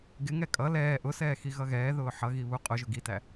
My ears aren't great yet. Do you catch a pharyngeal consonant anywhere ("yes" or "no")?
yes